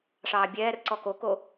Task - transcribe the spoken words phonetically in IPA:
ʂɑːbʲɛːrǀɔ koko

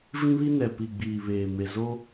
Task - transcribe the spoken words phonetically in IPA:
vĩ˦βi˦nɛ˨ pi˨ɡ͡biː˨ βeː˨me˨ zo˦

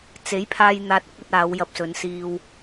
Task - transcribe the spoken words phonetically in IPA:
t͡se˨˥jpʰaː˧j n̪aː˧t̚ɐ˥k̚ ɵ˧t̚aː˨˧w jɐ˧p̚sɵ˨˧n siː˧w

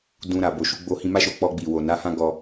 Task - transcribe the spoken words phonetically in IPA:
dũ˧ɾa˨ bo˨ʃu˧ ɡ͡bo˧hĩ˧ma˦ʃo˧ k͡pɔ˧ɡ͡bi˨ wo˨na˨˦hã˦ ɡɔ˧

